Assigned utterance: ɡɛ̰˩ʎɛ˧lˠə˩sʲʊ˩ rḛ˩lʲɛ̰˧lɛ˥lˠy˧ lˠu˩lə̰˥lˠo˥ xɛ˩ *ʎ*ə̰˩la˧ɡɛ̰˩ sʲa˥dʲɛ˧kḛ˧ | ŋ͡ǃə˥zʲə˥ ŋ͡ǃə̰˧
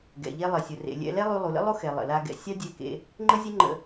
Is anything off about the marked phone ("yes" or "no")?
yes